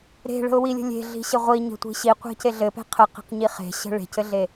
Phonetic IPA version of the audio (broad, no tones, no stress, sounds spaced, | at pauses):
ɾ e̤ ɭ ə̤ ʊ̯ w i lʲ ə̤ lʲ e̤ ɮ i̤ ɕ ɘ ʁʷ i ɲ ə̤ tʷ i̤ ɕ i qʷ e̤ c e ɮ ɘ p e̤ qʰ ə q i̤ q ɲ i χ e̤ ɕ ə̤ ɭ e̤ c ɘ ɮ e